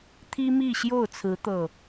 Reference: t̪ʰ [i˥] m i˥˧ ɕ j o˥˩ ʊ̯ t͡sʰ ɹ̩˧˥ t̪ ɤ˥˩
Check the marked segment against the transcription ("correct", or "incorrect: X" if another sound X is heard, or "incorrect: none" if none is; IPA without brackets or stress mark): correct